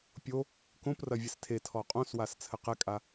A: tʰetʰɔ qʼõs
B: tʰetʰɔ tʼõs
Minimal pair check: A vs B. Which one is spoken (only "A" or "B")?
A